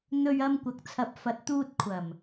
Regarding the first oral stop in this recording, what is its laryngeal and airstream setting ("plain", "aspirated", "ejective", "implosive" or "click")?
plain